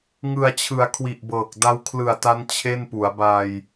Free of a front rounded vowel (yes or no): yes